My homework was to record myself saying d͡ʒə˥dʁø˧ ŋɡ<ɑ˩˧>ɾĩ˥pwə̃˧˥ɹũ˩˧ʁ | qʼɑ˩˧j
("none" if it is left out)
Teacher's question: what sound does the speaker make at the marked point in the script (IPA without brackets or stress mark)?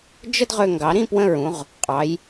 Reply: ɑ˩˧